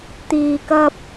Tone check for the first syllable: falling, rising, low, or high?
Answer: low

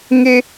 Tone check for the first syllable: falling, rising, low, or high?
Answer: high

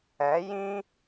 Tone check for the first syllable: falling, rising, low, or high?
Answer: rising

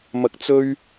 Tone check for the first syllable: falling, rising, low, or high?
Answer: high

